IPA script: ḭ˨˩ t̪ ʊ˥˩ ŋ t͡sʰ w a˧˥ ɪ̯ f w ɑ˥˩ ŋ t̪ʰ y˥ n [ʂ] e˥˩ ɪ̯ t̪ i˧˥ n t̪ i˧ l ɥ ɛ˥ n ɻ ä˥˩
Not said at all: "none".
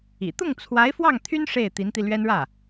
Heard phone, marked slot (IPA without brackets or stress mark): ʂ